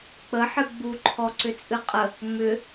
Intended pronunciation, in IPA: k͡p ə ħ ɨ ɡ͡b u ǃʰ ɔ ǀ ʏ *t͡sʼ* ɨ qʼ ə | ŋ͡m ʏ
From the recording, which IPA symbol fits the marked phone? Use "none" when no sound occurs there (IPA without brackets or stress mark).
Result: t͡sʼ